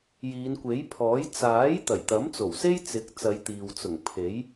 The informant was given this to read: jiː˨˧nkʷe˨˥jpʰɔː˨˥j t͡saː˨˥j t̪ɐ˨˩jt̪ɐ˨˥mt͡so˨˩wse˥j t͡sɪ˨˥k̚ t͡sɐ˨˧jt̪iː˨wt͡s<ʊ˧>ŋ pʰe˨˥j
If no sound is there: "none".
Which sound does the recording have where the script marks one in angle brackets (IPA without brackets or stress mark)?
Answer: ʊ˨˩